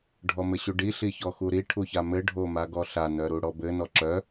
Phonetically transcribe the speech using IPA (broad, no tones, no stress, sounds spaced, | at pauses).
ɖʱ ɔ m ɘ ɕ u ɖ i ɬ i ç ɔ x u ɾ i ʈʰ u ç a m ɘ ɖʱ o m a ɡ ɔ ɬ a n œ ɾ u ɽ ɔ b ɘ n ɔ ǁ œ